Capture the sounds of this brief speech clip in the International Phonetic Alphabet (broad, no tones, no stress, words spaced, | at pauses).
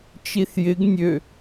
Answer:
t͡ʃiθjɪɡ nʲø